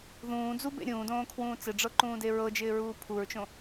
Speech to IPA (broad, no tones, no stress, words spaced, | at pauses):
ðũː d͡zubḛ ɾʲũːdõːkʰwũː t͡sɪɖ͡ʐɤǃũːde ɹɤd͡ʒɪːɹuː pʰuɹt͡ʃõ